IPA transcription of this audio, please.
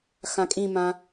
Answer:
x ã kʼ ĩ m ã

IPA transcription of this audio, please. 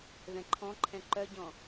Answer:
ð ɛ̃ ǃʰ ɔ̃ ǃʰ ɛ̃ ǃ œ ɟ ɔ̃

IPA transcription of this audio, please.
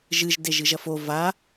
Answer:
ʒ ɨ ʒ d e ʒ ɨ ʒ ɐ f o v a

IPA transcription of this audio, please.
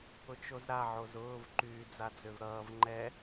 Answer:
ʊ t͡ʃ o z ɾ a ʕ o z ʊː v ǃ yː d͡z a d͡z ø v ɾ ʌː v ŋ͡ǃ ɛ

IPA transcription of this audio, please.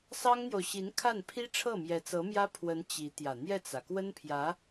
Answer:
s ɑ˥ ŋ n̪ j o˨ ʊ̯ ɕ i˧˥ n kʰ a˥˩ n pʰ i˥ ʈ͡ʂʰ ɤ˥˩ m j ɛ˧˥ t͡s ɤ˧˥ m j ä˥ pʰ w ə˧˥ n t͡ɕ i˧˥ t̪ j ä˨˩ n̪ j ɛ˥˩ t͡s ä˩ k w ə˥ n pʰ j ä˧˥

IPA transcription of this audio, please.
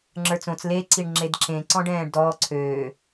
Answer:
ŋ͡ǁ ə˞ t͡s õ t͡s l e ǀ i ɳ ŋ͡ǁ e d ǁ ẽ ǀ ɔ̃ ɖ ɛ̃ː ɖ d ɔː ǀʰ øː

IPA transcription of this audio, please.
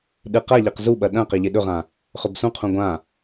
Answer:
ɗ ɨ q a ʎ e q z u ɓ ɐ ɗ ɐ̃ q e ʎ e ɗ ɵ ʁ ã | χ ɵ b s ũ qʰ ũ ɡʷ ã

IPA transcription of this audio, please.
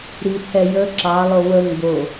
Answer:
ɾ i tʰ ɛ j ə ǁ ɑ lˠ o w ə ŋ b o

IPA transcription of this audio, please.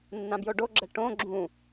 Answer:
nː ã b j o ɖ o ɡ͡ǁ ɛ ʈ õ ɡ͡ǁ ũ

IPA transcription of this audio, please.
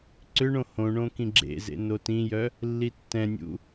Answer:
ǀ ʏ ɳ õ h õ ɳ õ k ĩ ɡ͡ǁ ḛ z ḛ n o t ĩ j œ | lː i tː ɛ̃ nʲ ṵ

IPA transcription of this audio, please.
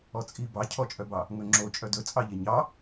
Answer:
ɔ t͡sʼ i b ɑ cʰ ɔ t͡ʃʼ œ b ɑ | ŋ ɵ ŋ͡ǁ o t͡ʃʼ œ d ɵ t͡sʼ ɑ ʎ e ɲ ɑ

